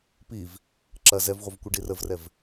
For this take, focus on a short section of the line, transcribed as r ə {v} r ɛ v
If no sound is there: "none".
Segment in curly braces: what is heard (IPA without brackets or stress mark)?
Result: v